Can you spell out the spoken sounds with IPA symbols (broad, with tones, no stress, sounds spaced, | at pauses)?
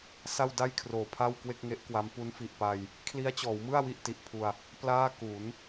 s a˥˩ w d a˥˩ j kʰ r oː˩˦ pʰ a˥˩ w k w e˥˩ k̚ ŋ e˦˥ ʔ k w a˦˥ m p u˦˥ n f i˨˩ ʔ p a˧ j | kʰ l i˦˥ a̯ t͡ɕ ɔː˩˦ w m ɯ˥˩ a̯ w i˥˩ ʔ t i˨˩ ʔ pʰ u˧ a̯ | p l aː˥˩ k u˩˦ n